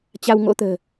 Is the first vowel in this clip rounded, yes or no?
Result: no